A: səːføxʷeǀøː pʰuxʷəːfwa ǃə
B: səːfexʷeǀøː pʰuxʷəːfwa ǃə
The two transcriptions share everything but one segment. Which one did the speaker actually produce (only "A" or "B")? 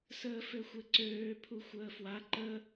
A